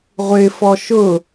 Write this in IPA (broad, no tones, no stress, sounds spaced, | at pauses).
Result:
ʁʷ ɪ f ɔ ʃ ʊ